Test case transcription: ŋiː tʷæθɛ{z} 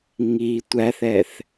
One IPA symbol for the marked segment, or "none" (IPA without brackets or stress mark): θ